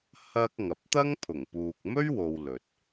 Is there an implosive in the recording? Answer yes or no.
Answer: no